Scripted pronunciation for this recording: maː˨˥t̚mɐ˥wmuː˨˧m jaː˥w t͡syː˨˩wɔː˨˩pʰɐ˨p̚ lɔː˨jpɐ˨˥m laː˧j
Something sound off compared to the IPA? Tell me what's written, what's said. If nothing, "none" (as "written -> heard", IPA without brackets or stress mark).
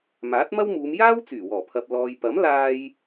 none